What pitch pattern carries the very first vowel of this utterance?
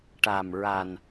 low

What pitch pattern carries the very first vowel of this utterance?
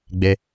high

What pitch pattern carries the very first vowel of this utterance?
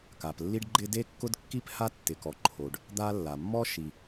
low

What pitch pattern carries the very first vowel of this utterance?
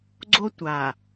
high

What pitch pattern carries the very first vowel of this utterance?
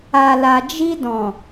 low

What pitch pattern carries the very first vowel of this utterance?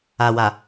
low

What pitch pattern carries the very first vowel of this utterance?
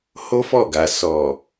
high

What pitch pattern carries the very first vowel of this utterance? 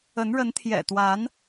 rising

